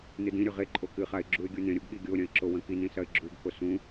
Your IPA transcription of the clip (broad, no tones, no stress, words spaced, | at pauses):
nɨdĩɾʲɵ ʁeǃʼo kɨχaɪ̯ ɡ͡ǁuɪ̯ɡʲunẽɾʲoɡ ɠiɡʲoɾʲɐ̃ɪ̯ ǁowɐ̃kinĩ sɐɪ̯ɡ͡ǁuɡko sũ